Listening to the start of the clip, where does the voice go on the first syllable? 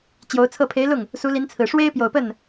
rising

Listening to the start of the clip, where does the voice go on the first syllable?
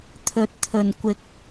rising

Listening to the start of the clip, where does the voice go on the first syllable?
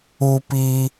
high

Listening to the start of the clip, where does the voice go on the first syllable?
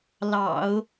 low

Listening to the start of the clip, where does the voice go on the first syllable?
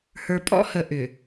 low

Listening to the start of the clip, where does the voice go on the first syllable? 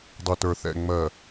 low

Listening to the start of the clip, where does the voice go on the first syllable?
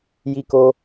high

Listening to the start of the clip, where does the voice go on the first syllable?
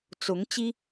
rising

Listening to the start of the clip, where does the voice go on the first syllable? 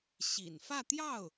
low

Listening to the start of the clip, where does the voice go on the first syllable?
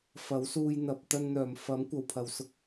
rising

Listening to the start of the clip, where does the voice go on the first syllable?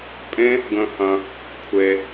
high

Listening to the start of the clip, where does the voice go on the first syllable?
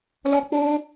high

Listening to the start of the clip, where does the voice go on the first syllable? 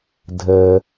low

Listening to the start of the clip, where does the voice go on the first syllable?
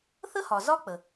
high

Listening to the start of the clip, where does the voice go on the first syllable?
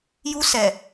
high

